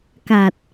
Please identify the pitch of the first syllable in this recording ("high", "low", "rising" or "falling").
low